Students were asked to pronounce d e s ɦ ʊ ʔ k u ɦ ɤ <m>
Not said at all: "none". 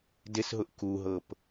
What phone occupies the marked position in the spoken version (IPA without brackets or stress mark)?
p